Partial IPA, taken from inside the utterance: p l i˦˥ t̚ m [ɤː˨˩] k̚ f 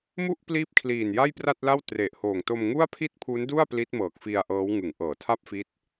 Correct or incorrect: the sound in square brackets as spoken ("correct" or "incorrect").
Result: correct